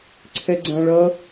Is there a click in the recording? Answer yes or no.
yes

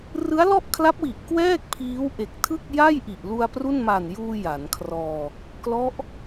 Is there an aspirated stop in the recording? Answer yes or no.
yes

